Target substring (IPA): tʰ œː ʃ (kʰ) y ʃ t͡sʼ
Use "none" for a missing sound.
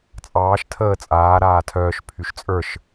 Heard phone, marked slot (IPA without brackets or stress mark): pʰ